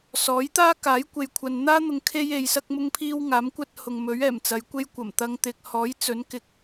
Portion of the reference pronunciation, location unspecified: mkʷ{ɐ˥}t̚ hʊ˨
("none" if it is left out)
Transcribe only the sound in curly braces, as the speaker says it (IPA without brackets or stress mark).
ɐ˥